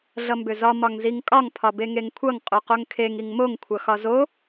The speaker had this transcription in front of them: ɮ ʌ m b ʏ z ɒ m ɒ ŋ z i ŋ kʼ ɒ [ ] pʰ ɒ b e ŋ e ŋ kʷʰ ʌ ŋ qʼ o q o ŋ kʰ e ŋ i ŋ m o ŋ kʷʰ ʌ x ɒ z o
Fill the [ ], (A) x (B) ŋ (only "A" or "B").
B